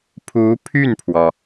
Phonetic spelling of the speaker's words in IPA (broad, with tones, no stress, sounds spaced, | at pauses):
pʰ u˧˥ pʰ y˥˩ n pʰ w ɔ˩